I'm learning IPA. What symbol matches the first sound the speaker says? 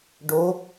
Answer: ɖ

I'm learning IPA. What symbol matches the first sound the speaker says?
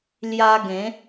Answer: l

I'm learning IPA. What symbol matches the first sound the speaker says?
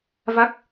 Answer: v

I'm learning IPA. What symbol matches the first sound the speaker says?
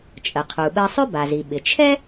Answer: t͡ʃʼ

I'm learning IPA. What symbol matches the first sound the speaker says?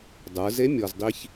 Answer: dˤ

